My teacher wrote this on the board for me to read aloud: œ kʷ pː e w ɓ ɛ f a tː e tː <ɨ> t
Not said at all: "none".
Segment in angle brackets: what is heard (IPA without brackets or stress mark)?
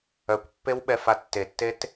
e